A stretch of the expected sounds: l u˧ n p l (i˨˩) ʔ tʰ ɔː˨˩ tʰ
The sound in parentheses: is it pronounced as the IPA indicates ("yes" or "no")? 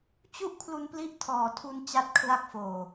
no